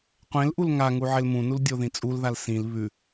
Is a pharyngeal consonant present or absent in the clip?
present